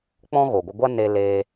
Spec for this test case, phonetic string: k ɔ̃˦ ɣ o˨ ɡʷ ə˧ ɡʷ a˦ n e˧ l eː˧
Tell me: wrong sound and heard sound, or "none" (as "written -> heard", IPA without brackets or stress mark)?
k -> k͡p